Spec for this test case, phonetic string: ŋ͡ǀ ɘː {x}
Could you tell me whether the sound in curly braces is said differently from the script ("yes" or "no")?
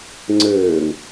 yes